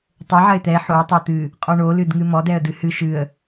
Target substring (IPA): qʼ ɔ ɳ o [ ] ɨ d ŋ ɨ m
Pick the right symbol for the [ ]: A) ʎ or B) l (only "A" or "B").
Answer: B